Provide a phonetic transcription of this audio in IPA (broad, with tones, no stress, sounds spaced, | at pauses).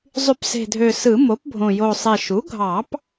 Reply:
zˤ y˨˩˦ p s e̤˨˩ dʱ ø˨˩ s ɯ˨˩˦ m o˩˥ p bʱ õ˨˩ j o˨˩ sˤ e˨˩ ʃ u˩˥ ɡʱ ɑ˨˩˦ p